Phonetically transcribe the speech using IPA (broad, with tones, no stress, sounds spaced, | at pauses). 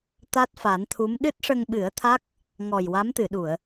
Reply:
t̪ a˦˥ t̚ f a˨˩˦ n t̪ʰ u˧˥ m ɗ ɨ˦˥ t̚ ʂ ə˧ ŋ ɓ ɨ˨˩˦ ə̯ t̪ʰ a˦˥ k̚ | ŋ ɔ˨˩ j w a˧˥ m t̪ ɨ˨˩˨ ɗ u˨˩˨ ə̯